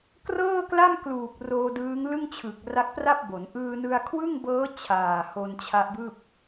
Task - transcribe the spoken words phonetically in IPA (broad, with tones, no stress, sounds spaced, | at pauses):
k r ɤː˥˩ k l a˥˩ m k l uː˨˩ k̚ r oː˧ d ɯː˦˥ ŋ l ɯ˥˩ ŋ t͡ɕʰ ɯ˨˩ k̚ r a˦˥ k̚ p r a˥˩ p̚ b o˩˦ n ʔ ɯː˧ n ɯ˧ a̯ kʰ w ɯ˥˩ ŋ b ɤː˦˥ t͡ɕʰ aː˨˩ h o˧ n t͡ɕʰ a˦˥ ʔ b ɯː˥˩ p̚